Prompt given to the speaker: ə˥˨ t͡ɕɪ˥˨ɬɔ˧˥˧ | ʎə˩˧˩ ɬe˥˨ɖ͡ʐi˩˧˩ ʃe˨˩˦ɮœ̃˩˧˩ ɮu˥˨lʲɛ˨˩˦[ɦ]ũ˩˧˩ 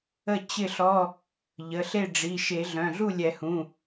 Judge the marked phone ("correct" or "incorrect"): incorrect